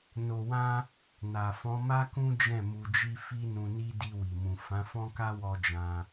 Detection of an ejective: absent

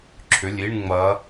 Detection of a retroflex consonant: present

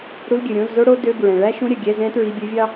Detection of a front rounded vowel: present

